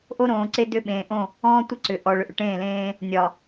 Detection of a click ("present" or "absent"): present